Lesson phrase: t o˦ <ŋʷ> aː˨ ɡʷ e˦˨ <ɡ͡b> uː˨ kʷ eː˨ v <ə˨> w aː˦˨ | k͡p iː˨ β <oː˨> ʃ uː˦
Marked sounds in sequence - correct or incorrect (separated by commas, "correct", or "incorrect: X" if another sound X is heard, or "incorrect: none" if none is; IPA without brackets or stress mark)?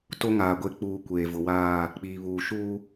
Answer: incorrect: ŋ, incorrect: k͡p, incorrect: ʊ˨, incorrect: uː˨